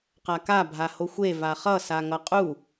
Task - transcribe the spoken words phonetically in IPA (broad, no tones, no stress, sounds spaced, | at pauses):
q a k a bʱ a h o xʷ e v a χ ʌ s a ŋ ʌ qʼ u